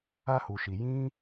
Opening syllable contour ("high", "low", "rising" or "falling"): high